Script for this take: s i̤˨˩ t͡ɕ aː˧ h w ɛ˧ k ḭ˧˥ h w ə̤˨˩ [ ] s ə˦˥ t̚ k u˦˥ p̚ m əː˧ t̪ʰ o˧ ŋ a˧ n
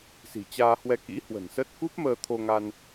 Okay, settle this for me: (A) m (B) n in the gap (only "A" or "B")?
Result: B